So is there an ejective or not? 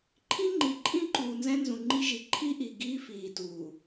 yes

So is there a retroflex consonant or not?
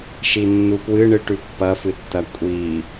yes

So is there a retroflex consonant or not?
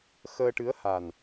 yes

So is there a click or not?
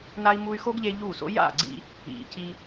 yes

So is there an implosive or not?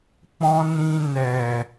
no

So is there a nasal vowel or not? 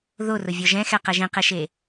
yes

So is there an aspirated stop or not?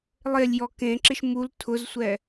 yes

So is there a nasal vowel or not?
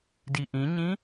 yes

